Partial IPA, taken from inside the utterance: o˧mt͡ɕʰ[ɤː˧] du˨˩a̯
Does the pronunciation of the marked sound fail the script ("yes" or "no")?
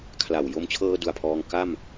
no